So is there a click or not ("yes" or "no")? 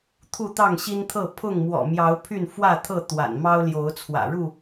no